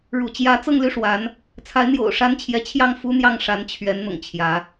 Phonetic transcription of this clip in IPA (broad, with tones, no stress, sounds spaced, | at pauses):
ɻ ṵ˨˩ t͡ɕ j ä˧˥ t͡s ɤ˥˧ ŋ l y˥˩ ʂ w a˧˥ n | t͡sʰ a˧˥ ɪ̯ n̪ j o̰˨˩ ʊ̯ ʂ a˥ n t͡ɕʰ j ɛ˧˥ t͡ɕʰ j ɑ˥˩ ŋ f u˥ n̪ j ɑ˥˩ ŋ ʂ a˧˥ n t͡ɕʰ ɥ ɛ˧˥ n n̪ ʊ̰˨˩ ŋ t͡ɕʰ j ä˧˥